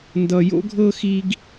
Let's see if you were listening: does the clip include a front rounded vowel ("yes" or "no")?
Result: no